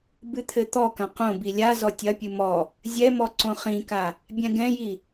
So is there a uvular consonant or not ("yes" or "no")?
yes